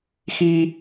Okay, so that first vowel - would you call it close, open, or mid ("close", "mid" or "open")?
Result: close